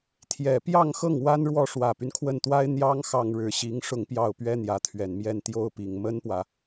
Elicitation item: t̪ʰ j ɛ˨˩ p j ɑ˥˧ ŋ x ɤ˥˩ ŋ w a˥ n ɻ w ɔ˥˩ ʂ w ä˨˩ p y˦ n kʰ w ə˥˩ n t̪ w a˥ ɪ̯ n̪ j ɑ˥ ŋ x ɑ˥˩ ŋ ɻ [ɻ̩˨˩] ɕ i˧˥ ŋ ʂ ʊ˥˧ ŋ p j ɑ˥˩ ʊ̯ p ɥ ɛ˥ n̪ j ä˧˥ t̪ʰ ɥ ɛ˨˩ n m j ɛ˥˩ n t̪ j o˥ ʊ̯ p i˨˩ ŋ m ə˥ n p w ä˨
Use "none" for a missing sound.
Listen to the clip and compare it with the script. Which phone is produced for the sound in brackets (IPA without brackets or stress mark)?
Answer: ɻ̩˨˩